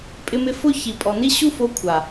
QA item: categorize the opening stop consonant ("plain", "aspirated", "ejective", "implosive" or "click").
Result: ejective